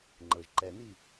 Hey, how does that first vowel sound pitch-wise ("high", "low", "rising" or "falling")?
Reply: low